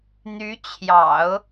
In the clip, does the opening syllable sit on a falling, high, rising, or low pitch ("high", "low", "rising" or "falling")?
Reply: rising